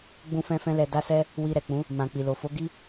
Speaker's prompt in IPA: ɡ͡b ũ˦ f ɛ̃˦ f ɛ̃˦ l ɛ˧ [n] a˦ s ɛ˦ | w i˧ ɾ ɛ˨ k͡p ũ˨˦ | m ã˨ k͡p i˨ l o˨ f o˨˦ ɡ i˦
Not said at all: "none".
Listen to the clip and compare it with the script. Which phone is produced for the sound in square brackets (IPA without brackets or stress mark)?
d